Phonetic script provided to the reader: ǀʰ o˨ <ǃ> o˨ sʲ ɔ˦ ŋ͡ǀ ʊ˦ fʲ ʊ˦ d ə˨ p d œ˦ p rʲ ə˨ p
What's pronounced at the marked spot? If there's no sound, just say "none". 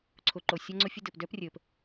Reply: ǃ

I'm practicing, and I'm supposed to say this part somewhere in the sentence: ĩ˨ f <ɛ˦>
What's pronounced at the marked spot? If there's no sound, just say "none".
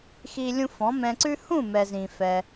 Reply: ɛ˧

